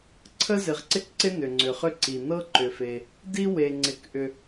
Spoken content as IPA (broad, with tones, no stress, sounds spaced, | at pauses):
ǀʰ ə˥ z ɪ˩ ʁ ǀ ɪ˥ k ǀ ɪ˥ n ʏ˩ ŋ͡ǀ ʏ˩ χ ʏ˥ ǀ i˩ n ɤ˥ ǃ ʏ˩ f e˩ | d i˥ w e˩ ŋ͡ǀ ɪ˩ k ʔ ʏ˩